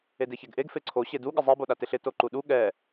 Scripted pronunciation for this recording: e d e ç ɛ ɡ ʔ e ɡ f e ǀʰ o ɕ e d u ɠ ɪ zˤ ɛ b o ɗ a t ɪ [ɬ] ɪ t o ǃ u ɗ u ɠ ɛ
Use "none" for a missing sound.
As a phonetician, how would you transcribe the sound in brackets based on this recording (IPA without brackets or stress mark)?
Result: ɬ